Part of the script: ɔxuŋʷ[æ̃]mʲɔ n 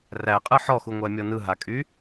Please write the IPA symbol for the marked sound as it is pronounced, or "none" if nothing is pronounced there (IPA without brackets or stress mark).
æ